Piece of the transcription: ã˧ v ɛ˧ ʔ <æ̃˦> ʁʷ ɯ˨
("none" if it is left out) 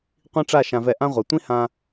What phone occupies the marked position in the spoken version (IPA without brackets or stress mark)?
ã˦